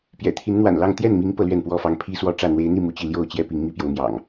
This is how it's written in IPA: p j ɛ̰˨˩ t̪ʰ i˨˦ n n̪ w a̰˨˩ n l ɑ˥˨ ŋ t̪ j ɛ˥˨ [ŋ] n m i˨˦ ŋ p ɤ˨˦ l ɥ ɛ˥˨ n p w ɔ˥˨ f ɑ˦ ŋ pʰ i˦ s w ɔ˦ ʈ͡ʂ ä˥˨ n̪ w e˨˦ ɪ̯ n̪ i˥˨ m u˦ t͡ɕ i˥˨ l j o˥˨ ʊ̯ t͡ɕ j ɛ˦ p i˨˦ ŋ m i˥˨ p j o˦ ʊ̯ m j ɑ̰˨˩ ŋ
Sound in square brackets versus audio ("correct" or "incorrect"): incorrect